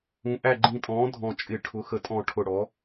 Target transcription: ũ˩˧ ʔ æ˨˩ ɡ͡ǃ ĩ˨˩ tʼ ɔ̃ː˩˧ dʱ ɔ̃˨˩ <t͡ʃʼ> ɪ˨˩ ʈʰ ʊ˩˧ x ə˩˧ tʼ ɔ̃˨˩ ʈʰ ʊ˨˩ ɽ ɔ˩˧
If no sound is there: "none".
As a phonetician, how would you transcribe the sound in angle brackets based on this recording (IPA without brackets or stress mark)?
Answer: t͡ʃʼ